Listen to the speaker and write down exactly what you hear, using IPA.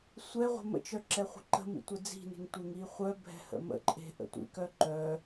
sʷɛ ʁʷə̤mə̰t͡ʃœ ǁɛχʷə̤ǃə̤mḭ tʷɛd͡zi̤ne̤ŋ tʷeŋiχʷœbʱɛ̤ hə̰mə̰ǃʼe̤ ʔə̰tʷḭkœ ǃœ

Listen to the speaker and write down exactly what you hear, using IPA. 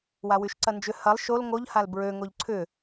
wawyʃǀɐnd͡ʒʏ hɐlˠ ʃol ŋoʎhal bɹø ŋoʎǀʰʏ

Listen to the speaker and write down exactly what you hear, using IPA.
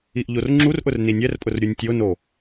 iʔʎorŋ͡ǁurʔʊr ninʲɛrpʼʊr ɾʲunʲtʲono

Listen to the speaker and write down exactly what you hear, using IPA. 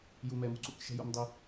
ju˨mɛ˨mṳ˦ǀṵ˦˨k ʃɛ̤˦jṵ˨˦mdˤø˦

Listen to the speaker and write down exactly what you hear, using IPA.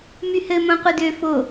myhɘ mõqʷɘdø fo

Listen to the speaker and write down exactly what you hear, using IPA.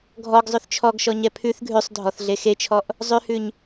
ɡʱɔɡzˤʉθ t͡ʃʰɔɡʃɔɲɛ pʰʉθ ɡʱʉsˤdʱɔθɮe xet͡ʃʰɔʔ | zˤʉhʉɲ

